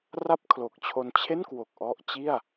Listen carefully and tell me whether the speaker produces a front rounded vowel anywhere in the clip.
no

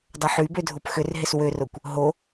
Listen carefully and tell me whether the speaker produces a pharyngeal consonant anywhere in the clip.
yes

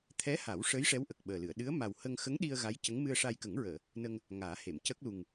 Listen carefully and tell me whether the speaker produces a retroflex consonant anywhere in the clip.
yes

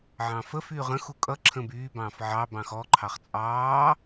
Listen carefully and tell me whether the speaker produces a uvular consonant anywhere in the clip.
yes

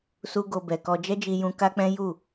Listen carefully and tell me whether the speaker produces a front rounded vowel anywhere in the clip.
no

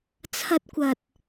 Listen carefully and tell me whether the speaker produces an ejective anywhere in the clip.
no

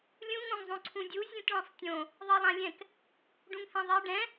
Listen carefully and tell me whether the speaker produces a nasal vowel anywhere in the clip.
yes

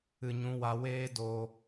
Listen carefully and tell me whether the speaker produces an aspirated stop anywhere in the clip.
no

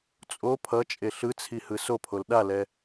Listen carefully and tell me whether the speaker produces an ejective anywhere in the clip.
yes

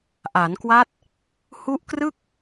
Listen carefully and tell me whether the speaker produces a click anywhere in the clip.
no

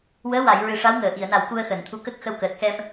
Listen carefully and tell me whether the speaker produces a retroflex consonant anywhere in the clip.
yes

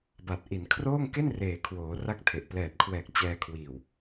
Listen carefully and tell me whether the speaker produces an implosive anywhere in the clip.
no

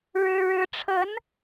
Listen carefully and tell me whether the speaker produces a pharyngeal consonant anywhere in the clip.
no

